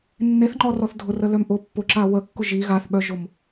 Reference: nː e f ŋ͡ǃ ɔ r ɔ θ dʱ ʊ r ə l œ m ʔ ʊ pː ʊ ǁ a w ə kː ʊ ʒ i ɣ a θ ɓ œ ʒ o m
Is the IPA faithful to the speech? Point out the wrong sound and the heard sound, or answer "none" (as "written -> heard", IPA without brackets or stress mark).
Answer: f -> θ